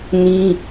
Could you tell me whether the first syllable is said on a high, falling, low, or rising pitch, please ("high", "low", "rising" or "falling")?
high